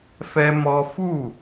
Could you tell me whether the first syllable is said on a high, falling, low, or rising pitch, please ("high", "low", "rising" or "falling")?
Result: high